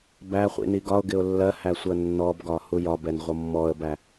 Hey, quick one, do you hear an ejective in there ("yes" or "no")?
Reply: no